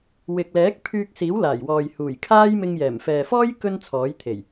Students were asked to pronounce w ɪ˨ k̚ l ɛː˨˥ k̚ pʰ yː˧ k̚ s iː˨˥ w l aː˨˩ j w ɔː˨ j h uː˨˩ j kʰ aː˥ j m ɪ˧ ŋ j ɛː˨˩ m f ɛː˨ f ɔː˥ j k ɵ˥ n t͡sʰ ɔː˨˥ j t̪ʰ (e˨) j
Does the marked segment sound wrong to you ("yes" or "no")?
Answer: yes